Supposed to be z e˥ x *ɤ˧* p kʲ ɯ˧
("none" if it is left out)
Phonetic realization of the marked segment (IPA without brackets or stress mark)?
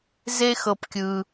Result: ɤ˧